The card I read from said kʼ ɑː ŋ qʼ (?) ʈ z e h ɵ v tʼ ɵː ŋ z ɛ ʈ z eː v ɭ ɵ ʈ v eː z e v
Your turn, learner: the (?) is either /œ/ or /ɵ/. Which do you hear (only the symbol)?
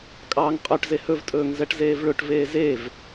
œ